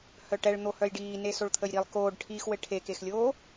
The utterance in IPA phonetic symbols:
h œ ʈ ɛ ɭ n̪ o h œ j ɖ iː n e s o ɭ t̪ʰ ə j ɾ i lˠ k oː ɖ ʈʰ iː x w ɘ ʈʰ e k e x lʲ oː

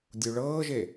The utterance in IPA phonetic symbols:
dʲ u ɭ ɤː ʒ e

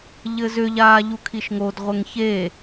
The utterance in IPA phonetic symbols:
ʎ ɘ z ʏ ʎ aː ʎ u kʰ i ʃ ŋ o d ʁʷ ɘ ŋ ç e

